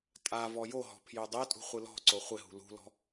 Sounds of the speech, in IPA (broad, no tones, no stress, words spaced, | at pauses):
tʼa vɔjoɦɔ̤ pʰjʏːdˤɪːtʼṳ χʷɨlɔ̤ǀo χʷɪɦṳ lṳlɔ̤